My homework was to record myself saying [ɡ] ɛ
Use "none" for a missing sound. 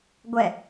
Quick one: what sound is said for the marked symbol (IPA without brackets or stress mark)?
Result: ɡʷ